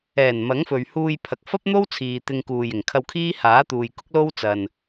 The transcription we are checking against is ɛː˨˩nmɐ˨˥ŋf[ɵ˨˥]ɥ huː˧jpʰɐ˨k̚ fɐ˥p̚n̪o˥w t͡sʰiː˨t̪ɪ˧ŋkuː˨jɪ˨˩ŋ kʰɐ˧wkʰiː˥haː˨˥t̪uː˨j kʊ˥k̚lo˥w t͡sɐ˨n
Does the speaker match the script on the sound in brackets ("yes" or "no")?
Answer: no